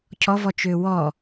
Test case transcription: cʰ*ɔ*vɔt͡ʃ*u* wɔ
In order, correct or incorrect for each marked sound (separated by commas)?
correct, incorrect